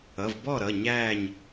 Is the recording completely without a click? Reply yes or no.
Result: yes